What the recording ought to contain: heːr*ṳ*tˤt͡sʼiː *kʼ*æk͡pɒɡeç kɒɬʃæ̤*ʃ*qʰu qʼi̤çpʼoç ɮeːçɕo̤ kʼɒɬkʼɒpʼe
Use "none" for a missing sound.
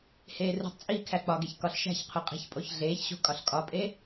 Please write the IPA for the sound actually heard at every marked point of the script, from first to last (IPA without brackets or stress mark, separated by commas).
ṳ, kʰ, ç